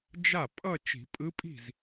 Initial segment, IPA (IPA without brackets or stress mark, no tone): d͡ʒ